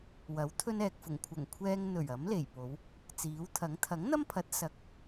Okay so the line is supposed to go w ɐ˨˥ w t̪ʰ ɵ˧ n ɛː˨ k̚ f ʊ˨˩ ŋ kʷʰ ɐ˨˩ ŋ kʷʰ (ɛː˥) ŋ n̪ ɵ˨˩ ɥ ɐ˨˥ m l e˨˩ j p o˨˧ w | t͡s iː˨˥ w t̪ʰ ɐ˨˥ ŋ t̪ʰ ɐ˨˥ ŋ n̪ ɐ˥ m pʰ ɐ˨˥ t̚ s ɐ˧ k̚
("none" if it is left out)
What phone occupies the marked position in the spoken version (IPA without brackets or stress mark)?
ɛː˧